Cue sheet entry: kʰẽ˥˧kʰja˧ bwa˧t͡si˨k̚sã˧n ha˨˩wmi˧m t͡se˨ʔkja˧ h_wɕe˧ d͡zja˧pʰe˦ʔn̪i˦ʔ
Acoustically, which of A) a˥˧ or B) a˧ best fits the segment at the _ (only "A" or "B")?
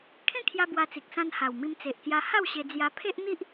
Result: A